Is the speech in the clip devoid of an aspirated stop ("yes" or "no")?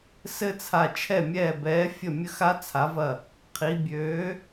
no